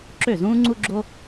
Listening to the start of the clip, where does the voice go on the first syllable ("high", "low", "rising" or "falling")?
falling